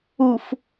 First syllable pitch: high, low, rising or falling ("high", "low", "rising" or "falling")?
low